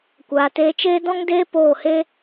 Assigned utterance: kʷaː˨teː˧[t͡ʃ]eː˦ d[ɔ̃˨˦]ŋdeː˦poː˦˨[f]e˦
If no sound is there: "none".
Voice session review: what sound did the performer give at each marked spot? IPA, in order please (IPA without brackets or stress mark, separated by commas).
t͡ʃ, ɔ̃˦, h